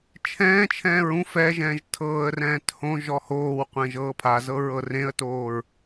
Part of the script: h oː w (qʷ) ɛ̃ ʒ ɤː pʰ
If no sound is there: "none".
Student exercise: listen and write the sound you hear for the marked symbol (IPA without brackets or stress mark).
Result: qʷ